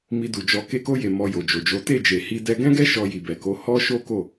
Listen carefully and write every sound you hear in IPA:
m i˧ d u˨ d͡ʒ ɔ˧ k e˧ k o˧ j e˨ m ɔ˧ j o˨ d͡ʒ o˨ d͡ʒ o˨˦ t e˦˨ d͡ʒ e˨ h i˧ d ɛ˧ ɡ ɛ̃˦ ɡ ɛ˦ ʃ ɔ˧ j i˨ b ɛ˨ k o˨˦ h ɔ˦ ʃ o˦ k o˦˨

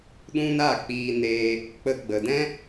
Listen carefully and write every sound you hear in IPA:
ɗ ũ˦ n a˦˨ k͡p iː˧ n eː˧ | k͡p ə˧ ɡ͡b ə˨ d ɛ̃˦

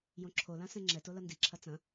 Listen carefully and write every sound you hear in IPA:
j õ ǁʰ o l ã s ɛ̃ ŋ͡ǁ ɛ t o l ɐ n d i ǁʰ ɐ t͡s ɐ̃

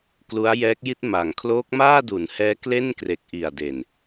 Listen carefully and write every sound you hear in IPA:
k l u˦˥ a̯ j ɛː˦˥ k̚ j i˥˩ t̚ m a˨˩ ŋ kʰ l oː˦˥ k̚ m aː˥˩ d u˩˦ n h ɛː˦˥ k l e˥˩ n k r e˨˩ k̚ ʔ i˨˩ a̯ d e˨˩ n

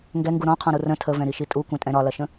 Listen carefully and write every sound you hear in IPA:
ŋ ɡ ɛ ŋ ɡ u ɾ ɔ̃ qʰ ɔ̃ ɾ u r ə̃ tʰ ə v ɛ̃ ɾ i ʃ i tʼ u kʷ ɛ̃ tʼ ɛ̃ ɾ ɒ l ɐ ʃ ə̃

